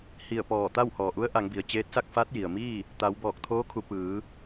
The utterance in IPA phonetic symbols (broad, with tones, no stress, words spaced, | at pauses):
hi˧˩ə̯pɔː˧˩t̪a˥˨w hɔː˩ʔu˧˥ə̯ ʔa˩˧ŋbi˩ə̯t͡ɕeː˧˥t̚sa˥˨k̚ fa˧˥t̚ji˩ə̯miː˥˨ | t̪a˩˧wbɔː˧˩k̚t̪ʰoː˧˥kʰu˩˧ pɯː˩˧